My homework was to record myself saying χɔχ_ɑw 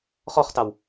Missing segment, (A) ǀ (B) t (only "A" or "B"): B